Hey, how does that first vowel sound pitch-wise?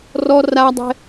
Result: high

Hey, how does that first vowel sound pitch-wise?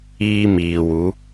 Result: high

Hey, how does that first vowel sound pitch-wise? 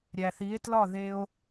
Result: low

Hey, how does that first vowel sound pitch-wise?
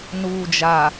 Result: low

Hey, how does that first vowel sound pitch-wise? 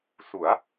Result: rising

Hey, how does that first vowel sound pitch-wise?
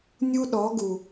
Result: high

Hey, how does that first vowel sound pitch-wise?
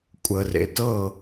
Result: low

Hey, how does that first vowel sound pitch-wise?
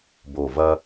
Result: low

